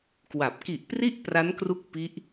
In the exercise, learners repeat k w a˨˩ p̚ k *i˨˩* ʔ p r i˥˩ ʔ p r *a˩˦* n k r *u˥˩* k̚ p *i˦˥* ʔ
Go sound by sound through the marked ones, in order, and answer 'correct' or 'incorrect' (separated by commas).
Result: correct, incorrect, incorrect, correct